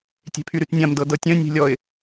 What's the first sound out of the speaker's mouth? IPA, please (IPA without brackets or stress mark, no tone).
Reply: tʲ